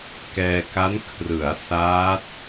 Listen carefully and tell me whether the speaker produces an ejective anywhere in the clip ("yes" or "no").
no